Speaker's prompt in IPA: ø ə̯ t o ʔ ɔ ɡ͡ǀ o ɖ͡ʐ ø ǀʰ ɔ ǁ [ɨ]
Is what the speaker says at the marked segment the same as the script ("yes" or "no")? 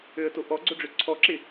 no